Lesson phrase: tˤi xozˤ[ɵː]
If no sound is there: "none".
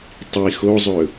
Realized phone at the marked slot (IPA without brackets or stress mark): ɵ